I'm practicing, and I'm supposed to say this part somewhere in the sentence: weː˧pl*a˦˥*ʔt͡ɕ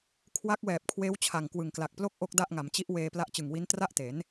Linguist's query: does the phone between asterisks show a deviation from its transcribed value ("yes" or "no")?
no